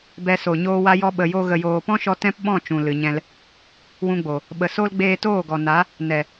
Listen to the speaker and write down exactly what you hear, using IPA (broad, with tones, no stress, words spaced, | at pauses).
bɛ˧so˨ ɲoː˧wa˧jɔ˧ ɓə˧jo˦ ɣə˨joː˨pɔ̃˦ʃɔ˧ tɛ̃˦pɓɔ̃˦˨ t͡ʃũ˨lɨ˨ɲɛ̃˧l | wũ˧ɡ͡bo˨ | ɓə˨so˦l ɡ͡beː˧toː˦˨ɡɔ˨na˨˦ | nɛ˨